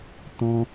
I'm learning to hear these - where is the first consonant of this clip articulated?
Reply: tongue tip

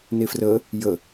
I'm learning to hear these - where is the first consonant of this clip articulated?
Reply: tongue tip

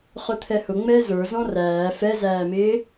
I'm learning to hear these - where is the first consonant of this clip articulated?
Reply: uvula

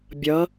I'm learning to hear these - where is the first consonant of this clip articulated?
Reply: lips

